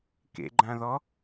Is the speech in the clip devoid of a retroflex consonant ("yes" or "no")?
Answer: yes